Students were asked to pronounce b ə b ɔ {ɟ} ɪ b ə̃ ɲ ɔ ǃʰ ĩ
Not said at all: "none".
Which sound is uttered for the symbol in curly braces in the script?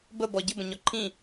ɟ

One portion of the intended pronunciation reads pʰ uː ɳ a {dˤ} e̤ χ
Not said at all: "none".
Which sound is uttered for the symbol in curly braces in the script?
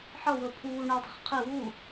dˤ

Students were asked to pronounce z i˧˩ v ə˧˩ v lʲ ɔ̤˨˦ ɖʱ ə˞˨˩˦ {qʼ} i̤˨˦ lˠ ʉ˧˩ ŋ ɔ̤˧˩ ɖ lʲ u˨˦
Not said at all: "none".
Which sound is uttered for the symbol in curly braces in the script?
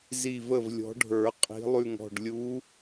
qʼ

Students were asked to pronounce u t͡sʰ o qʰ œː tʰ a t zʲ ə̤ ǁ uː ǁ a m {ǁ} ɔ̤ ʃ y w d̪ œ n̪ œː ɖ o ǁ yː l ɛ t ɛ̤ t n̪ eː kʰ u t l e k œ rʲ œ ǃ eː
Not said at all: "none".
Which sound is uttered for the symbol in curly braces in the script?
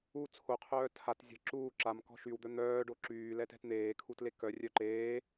k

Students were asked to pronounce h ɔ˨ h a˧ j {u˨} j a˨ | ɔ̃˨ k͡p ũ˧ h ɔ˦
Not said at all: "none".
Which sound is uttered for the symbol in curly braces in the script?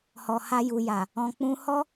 u˨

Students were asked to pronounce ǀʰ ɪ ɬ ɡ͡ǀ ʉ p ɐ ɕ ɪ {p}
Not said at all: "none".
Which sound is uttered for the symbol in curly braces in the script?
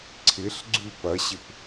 p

